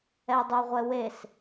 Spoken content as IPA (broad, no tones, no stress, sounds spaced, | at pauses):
ɛ dˤ u ʁʷ ɛ w e s